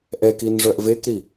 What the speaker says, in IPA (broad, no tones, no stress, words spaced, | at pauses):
ʔɛkin ʐœʔvekɾi